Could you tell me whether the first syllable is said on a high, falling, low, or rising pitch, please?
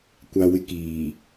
low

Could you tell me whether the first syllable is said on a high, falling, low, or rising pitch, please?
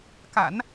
low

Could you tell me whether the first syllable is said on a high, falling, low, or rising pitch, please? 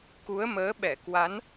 rising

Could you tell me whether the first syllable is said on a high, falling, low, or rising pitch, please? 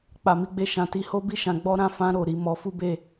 low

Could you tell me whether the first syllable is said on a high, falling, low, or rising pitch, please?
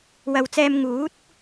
low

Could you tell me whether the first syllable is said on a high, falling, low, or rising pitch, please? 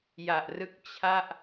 low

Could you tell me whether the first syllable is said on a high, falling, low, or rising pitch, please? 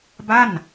falling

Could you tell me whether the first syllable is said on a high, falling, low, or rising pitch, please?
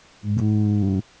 low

